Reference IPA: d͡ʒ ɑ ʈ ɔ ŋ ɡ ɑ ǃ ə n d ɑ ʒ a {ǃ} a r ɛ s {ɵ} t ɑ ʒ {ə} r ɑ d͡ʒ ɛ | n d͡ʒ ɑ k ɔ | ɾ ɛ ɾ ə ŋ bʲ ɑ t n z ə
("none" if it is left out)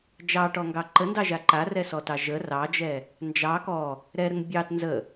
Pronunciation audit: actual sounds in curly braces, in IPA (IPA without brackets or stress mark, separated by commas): ǃ, ɔ, ə